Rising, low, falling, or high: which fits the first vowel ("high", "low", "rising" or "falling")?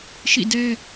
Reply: falling